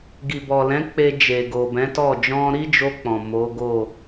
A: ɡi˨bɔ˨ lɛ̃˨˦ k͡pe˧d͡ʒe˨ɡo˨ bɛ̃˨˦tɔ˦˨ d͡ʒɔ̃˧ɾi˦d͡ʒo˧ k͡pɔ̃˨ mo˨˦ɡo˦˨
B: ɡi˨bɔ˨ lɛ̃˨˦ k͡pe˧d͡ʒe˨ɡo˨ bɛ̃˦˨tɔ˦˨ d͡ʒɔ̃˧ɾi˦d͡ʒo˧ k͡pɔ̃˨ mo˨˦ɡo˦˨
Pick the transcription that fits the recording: A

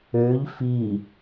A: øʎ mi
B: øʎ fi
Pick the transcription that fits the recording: B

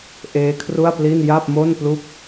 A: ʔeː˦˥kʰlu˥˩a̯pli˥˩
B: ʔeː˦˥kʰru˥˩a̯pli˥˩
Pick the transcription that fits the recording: B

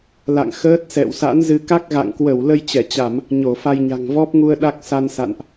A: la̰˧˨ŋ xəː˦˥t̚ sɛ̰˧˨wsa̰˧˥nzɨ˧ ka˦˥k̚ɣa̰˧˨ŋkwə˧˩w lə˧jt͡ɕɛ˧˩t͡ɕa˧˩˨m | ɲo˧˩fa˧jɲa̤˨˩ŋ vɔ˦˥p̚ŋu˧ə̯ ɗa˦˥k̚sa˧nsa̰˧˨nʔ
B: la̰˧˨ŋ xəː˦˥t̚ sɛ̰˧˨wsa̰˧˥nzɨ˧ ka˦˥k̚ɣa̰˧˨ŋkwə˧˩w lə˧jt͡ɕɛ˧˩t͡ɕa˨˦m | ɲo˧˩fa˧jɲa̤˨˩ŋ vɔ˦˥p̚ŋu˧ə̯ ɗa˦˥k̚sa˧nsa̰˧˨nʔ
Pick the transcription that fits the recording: A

